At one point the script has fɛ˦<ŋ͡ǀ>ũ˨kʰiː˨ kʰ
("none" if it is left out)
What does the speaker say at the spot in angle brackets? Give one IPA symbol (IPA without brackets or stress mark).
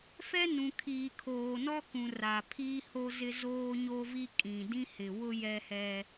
n